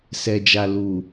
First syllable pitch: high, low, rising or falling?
low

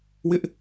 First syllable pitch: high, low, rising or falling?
high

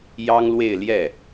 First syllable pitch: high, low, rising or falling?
high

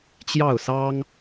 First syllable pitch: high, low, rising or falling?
falling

